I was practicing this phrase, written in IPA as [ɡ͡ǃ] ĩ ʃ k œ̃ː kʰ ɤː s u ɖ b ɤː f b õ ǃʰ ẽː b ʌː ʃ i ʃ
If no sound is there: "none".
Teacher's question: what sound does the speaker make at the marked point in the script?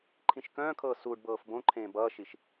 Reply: ǃʰ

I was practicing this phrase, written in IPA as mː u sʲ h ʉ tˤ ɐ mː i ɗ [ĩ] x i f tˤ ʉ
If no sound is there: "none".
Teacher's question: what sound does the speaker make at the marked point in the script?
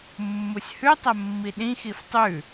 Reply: ĩ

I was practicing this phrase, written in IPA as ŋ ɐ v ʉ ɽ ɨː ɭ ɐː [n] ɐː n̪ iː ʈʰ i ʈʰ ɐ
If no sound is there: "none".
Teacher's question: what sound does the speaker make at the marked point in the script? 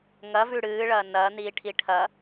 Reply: n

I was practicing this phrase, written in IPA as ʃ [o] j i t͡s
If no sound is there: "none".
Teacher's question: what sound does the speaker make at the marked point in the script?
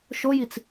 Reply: o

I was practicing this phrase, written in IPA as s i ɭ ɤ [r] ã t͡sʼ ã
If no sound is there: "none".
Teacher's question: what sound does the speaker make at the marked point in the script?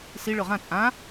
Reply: ʁ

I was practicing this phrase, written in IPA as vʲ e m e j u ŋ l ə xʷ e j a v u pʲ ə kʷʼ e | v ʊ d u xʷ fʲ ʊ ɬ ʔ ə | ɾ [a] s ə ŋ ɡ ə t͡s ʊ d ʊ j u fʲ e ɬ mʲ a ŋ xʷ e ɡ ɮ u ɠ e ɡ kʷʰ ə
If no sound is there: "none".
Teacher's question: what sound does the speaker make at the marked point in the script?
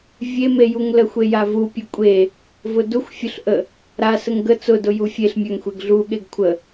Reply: a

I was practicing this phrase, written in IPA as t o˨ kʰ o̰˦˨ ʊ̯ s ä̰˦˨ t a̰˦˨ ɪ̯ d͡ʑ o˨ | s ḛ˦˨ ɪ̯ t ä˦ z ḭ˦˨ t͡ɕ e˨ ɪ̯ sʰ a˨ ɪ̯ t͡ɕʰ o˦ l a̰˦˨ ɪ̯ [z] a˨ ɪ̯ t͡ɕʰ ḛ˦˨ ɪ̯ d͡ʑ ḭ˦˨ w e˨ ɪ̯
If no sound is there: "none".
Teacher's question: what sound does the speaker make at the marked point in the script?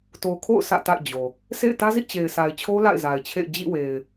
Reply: z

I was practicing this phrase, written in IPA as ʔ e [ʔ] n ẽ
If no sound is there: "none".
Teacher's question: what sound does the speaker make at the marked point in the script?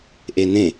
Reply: none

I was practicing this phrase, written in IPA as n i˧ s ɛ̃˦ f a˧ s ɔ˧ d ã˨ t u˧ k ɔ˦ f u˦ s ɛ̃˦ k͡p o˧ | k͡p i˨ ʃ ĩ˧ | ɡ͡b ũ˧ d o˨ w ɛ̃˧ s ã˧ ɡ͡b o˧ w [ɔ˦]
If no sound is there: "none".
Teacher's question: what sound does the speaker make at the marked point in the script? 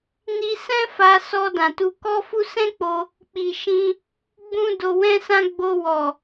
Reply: ɔ˨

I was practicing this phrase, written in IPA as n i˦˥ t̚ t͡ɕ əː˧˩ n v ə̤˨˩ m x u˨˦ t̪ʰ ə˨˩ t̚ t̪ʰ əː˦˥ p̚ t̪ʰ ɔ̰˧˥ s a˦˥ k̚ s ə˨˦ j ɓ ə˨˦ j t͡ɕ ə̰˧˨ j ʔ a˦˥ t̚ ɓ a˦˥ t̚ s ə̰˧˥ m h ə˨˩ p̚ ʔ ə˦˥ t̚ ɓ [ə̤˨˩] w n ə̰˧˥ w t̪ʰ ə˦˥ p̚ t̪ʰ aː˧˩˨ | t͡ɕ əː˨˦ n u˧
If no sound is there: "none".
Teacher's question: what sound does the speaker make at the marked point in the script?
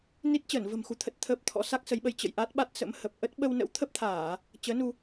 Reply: ə˧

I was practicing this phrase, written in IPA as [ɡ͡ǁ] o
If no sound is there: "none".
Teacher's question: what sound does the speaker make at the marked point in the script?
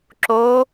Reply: ǁ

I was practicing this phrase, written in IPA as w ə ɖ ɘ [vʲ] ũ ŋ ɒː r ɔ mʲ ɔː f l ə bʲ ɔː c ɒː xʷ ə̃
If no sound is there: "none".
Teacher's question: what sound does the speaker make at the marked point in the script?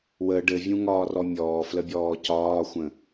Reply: vʲ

